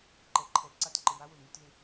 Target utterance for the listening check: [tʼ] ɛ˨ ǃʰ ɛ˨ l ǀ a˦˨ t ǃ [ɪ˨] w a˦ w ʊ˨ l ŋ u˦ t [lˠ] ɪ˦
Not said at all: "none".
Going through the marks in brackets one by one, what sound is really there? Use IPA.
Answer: ǃ, ɪ˨, l

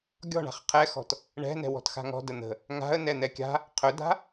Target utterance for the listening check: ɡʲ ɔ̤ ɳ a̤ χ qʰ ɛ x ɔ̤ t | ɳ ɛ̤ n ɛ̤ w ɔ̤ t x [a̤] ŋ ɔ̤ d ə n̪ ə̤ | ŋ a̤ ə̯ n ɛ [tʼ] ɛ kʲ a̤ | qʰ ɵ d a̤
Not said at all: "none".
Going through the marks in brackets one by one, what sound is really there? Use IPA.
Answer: a̤, n̪

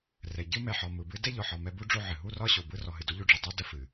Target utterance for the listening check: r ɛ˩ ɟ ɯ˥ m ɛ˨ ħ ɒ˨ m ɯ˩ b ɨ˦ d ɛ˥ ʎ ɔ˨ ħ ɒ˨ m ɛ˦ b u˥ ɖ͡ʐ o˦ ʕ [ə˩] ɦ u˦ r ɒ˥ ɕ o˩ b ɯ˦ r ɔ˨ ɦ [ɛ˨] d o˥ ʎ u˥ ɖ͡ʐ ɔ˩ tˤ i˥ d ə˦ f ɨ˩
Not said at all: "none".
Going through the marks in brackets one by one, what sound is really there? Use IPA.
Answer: ɨ˩, ɨ˨

